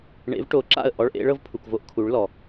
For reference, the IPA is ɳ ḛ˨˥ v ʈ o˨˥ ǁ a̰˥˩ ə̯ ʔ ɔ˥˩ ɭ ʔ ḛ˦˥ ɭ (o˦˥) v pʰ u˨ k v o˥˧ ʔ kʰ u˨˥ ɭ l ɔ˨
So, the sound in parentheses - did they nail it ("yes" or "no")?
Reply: no